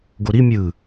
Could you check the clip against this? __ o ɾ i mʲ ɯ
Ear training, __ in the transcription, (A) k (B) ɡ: B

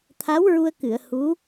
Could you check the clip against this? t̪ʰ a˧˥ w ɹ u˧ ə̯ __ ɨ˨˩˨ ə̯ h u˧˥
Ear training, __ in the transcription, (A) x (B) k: B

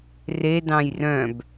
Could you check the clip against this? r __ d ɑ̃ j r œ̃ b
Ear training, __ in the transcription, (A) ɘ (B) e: B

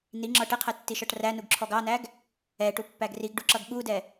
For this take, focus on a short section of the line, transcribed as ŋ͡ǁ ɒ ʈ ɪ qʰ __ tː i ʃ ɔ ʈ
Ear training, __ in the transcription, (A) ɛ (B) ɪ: A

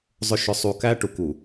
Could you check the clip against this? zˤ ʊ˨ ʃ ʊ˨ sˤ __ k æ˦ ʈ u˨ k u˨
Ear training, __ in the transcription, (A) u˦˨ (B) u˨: B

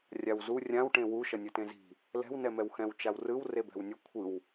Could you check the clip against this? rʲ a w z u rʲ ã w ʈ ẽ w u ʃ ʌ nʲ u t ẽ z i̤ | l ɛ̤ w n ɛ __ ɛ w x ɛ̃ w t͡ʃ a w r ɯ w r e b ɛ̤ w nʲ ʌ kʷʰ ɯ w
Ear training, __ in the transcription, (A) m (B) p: A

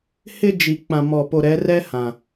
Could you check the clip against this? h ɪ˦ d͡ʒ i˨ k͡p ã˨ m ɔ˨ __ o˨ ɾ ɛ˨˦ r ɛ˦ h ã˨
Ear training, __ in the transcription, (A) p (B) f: A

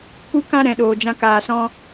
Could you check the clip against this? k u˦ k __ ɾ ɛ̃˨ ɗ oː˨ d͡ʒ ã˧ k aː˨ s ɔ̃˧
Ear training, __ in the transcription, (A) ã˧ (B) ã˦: B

